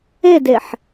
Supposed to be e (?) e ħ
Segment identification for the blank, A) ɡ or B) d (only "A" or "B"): B